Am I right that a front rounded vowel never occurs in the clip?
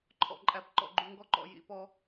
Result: yes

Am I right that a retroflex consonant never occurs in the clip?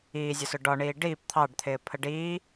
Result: no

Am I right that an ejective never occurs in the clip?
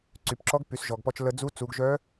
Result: yes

